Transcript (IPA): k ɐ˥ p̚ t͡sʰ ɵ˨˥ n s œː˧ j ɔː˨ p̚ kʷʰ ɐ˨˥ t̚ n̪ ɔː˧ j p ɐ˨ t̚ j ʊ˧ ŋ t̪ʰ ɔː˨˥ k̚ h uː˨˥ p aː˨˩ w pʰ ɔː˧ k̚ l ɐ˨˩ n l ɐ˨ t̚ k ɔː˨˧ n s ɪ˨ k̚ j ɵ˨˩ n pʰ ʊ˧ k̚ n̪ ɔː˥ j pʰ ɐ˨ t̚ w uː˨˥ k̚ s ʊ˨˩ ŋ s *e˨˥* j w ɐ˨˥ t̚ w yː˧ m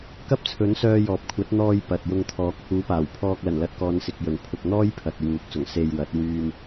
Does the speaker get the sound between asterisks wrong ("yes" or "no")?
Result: yes